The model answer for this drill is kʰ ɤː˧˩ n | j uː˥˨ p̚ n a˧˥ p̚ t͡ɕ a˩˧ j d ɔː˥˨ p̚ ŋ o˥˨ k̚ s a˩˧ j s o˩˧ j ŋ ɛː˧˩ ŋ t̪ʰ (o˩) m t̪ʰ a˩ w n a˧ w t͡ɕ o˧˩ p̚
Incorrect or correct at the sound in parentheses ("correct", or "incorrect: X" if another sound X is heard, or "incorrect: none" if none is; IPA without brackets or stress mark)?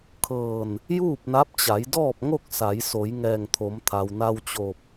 incorrect: o˩˧